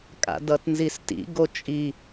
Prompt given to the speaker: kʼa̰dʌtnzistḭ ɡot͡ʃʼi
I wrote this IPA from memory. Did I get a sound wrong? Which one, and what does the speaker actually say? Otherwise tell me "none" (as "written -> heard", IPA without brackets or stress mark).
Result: none